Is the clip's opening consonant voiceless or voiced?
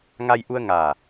voiced